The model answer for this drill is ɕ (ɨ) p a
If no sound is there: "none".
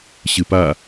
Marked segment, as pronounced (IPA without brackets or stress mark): ɨ